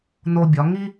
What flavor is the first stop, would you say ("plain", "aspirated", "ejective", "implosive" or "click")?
plain